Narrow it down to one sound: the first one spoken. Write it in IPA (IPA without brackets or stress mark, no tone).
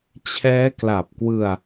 t͡ɕʰ